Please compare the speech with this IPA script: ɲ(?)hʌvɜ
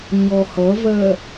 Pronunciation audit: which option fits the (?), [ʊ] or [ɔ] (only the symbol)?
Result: ɔ